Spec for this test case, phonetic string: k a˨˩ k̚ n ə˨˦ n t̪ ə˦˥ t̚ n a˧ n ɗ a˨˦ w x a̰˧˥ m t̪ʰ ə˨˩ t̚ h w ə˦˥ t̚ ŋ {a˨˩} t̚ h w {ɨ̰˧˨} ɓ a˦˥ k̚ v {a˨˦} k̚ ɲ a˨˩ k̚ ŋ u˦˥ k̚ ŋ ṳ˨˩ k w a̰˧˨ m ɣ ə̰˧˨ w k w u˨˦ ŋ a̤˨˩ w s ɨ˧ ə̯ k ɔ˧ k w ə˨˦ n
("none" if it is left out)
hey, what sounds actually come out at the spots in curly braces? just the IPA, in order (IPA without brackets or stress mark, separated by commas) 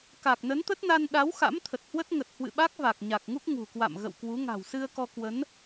ə˨˩, ɨ̰˧˨, a˨˩